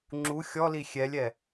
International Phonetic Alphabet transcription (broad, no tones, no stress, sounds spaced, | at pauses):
ŋ͡ǁ u xʲ ɔ l i xʲ ɛ lʲ ɛ